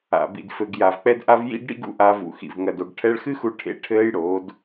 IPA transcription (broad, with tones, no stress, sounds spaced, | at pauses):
a̰˨ b ḭ˨ d f ɘ˨ ɡ j a˨ v k͡p ɛ˧ d ʔ a˧ v j ḭ˧ ɡ ɽ ḭ˧ ɡ ṵ˧ ʔ a˧ v ṵ˨ x ḭ˨ v ŋ ɐ˨ d o˨ ɡ ʈʰ ɛ˧ ɭ x ɨ˦ x u˧ ʈʰ ḛ˧ ʈʰ ɘː˦ j ɽ oː˨˦ d